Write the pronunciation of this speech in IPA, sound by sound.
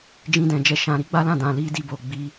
d͡ʒĩ˧dɛ̃˨d͡ʒɛ˧ ʃã˨ɾi˨˦ɡ͡ba˦lã˦˨ dã˨li˧ di˧bo˨ɡ͡bi˧

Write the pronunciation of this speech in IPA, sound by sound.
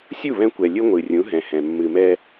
sʲu˦˨βɛ̃˧kʷɛ˨ lʲɨ˦ŋʷɨ˨rʲũ˨˦ ɦɛ̃˨hɛ̃˨ mːɨ˨mɛ˧

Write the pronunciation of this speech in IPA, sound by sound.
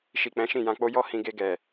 ʃi˨ k͡pɛ̃˨˦ʃĩ˦˨jã˧k͡po˦ jɔ˦ hĩ˧ɡe˧ɡɛ˨

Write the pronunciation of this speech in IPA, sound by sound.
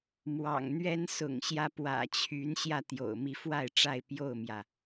mwɑ̰˨˩ŋn̪ɥɛ˦n sʊ̰˨˩ŋɕjä˦pwä̰˨˩ t͡ɕʰy˨˦nɕjä˧ t̪jo̰˨˩ʊ̯mi˨˦fwa˥˨ɪ̯ʈ͡ʂa˥˨ɪ̯ pjo˥˨ʊ̯mjä˩

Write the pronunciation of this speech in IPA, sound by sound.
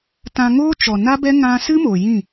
tã˧ŋoː˦ t͡ʃɔ˨na˦bɛ˦ ŋã˧sɨ˦mo˨ jĩ˦˨

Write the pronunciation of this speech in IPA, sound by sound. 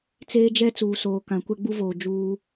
t͡seː˦d͡ʒɛ˦ t͡suː˨soː˨kã˨kʷɛ˦ ɡ͡bu˦voː˨ d͡ʒuː˦

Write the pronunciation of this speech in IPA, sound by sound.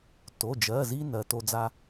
to˩˧˩d͡ʒɜ˩˧˩zi˧ nɜ˩˧to˧ d͡za˧

